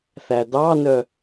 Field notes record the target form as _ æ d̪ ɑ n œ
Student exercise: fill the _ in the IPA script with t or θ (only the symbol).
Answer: θ